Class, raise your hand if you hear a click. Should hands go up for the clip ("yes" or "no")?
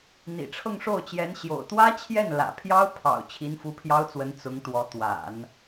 no